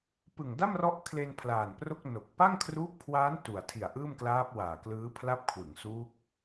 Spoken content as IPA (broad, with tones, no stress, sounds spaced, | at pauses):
p ɯ˨˩ ŋ d a˥˩ m r ɔ˦˥ ʔ kʰ l e˧ n pʰ l aː˨˩ n p r o˥˩ k̚ n o˨˩ k̚ p a˥˩ ŋ kʰ r uː˦˥ p̚ kʰ w aː˦˥ n t u˨˩ a̯ tʰ i˨˩ a̯ ʔ ɯː˥˩ m k l aː˦˥ p̚ w aː˨˩ k l ɯː˦˥ pʰ l a˥˩ p̚ kʰ w ɯ˩˦ ŋ s uː˦˥ k̚